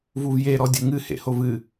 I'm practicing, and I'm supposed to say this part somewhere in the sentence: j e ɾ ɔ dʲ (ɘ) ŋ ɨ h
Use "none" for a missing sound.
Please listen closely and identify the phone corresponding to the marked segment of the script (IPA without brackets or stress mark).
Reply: ɘ